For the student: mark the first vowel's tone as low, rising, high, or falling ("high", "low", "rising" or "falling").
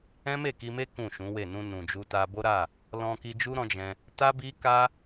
high